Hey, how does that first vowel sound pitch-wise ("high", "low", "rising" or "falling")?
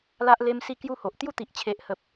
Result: high